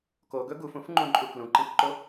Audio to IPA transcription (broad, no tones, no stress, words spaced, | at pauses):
koɡɵ ɡufũfŋ͡ǃũǃʼu klũǃĩkǃo